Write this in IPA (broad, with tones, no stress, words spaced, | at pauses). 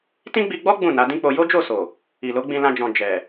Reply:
tĩ˦ɡ͡bi˧ ɡ͡bɔ˦ ɡ͡bũ˦˨ na˨˦dĩ˦k͡po˧ jo˦d͡ʒo˦˨so˨ | i˨lo˨˦ɡ͡bĩ˧lã˧ d͡ʒɔ̃˨ d͡ʒɛ˨